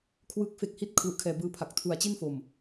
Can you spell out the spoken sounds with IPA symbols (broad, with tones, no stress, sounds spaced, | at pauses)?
kʰ w ɯː˦˥ k̚ f e˦˥ k̚ h i˥˩ t̚ kʰ l u˨˩ ʔ kʰ ɛː˨˩ b ɯː˧ pʰ a˨˩ k̚ tʰ u˨˩ a̯ t͡ɕ i˥˩ n f o˨˩ m